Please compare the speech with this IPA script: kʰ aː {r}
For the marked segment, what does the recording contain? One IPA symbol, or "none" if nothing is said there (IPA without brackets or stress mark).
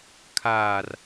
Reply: r